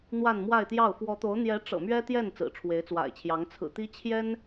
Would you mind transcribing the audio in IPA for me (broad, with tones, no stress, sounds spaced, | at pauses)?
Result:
n̪ w a˥˧ n m w a˥˧ ɪ̯ t̪ j ɑ˥˩ ʊ̯ f w ɔ˧˥ t̪ o˧˥ ʊ̯ n̪ j ɛ˧˥ ʈ͡ʂ ɤ̰˨˩ m ɥ ɛ˥ t̪ j ɛ˥˩ n t͡s ɹ̩˨˩ ʈ͡ʂʰ w e˧˥ ɪ̯ t͡s w a̰˨˩ ɪ̯ t͡ɕʰ j ɑ˧˥ ŋ t͡sʰ ɹ̩˨˩ t̪ i˥ t͡ɕʰ j ɛ˥ n